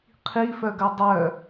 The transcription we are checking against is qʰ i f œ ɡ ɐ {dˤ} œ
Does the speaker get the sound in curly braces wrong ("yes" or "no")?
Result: no